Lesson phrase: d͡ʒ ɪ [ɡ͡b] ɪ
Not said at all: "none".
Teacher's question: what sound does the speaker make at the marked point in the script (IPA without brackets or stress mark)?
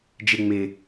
ŋ͡m